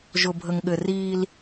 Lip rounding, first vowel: rounded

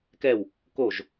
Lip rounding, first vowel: unrounded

